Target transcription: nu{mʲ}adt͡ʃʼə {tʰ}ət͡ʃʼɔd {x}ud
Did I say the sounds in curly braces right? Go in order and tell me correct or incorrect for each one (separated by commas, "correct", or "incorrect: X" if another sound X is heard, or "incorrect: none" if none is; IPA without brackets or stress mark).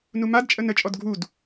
incorrect: m, incorrect: n, incorrect: ɡʱ